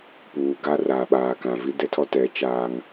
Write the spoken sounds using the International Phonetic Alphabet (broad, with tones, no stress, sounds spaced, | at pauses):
p uː˨ ɡ a˦ r a˨ ɓ aː˨ k ã˨ v i˦ d ɛ˦ tʰ ɔ˦ t ɛ˨˦ t͡ʃ aː˦ ŋ